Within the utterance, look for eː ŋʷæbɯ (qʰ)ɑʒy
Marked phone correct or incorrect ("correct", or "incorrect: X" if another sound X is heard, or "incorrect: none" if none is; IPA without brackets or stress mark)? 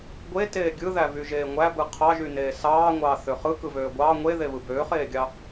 correct